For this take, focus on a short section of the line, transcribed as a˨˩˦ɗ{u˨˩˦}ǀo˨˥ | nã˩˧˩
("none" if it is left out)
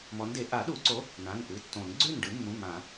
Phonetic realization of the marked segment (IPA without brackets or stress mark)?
u˨˩˦